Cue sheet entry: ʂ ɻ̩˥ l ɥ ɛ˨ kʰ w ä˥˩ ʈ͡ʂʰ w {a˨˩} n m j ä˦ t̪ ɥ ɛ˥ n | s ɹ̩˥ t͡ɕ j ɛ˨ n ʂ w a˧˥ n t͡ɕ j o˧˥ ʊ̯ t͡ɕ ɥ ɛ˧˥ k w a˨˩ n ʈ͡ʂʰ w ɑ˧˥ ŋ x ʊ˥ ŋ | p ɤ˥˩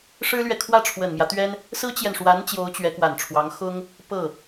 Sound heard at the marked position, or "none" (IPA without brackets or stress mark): ə˨˩